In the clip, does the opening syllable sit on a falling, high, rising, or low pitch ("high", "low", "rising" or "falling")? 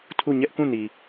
falling